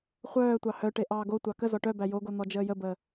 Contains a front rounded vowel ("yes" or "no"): yes